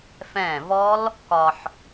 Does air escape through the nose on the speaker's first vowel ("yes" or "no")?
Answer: yes